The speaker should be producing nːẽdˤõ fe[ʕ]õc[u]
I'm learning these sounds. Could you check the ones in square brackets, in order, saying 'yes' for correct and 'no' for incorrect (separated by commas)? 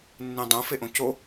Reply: no, no